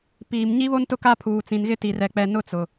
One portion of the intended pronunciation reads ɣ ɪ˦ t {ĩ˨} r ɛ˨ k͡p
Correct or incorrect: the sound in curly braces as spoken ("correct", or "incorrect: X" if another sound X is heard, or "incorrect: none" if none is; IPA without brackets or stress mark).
incorrect: i˨